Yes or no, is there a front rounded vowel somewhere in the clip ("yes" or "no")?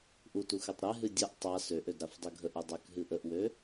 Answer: yes